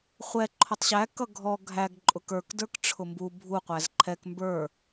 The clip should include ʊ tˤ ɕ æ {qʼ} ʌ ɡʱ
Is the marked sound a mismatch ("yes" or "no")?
yes